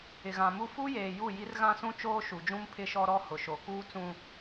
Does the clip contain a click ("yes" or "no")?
no